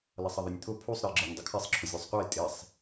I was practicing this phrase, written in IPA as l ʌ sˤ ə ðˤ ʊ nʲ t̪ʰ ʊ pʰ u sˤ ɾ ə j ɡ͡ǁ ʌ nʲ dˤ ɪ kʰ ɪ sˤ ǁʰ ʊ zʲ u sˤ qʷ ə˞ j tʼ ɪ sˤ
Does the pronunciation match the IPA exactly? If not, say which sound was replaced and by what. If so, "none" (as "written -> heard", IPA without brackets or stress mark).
none